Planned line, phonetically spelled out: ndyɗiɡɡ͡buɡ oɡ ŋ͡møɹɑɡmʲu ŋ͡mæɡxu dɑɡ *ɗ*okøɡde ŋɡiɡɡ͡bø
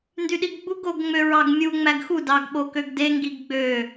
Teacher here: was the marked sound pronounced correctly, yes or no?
no